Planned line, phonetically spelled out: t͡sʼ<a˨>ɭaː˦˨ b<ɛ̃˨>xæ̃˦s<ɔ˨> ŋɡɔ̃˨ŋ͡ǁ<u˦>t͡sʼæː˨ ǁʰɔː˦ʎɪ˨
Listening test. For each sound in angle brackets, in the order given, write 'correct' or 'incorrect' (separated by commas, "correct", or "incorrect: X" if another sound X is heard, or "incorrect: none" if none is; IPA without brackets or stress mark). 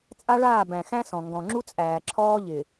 incorrect: a˦, incorrect: æ̃˨, incorrect: ɔ̃˨, correct